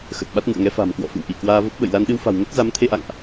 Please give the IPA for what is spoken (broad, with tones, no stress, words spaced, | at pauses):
xə˨˩t̚ɓa˦˥t̚ŋɨ̰˧˨ə̯ ŋɛ˨˦fa̤˨˩mkwɔ̰˧˨fɨ̰˧˨w ʔi˧˩ kwaː˧və˦˥p̚ ɓə̰˧˨jla˧n ɗɨ˧wfa̤˨˩w ŋə˦˥t̚za˨˦mt̪ʰe˧ʔa̰˧˨ŋʔ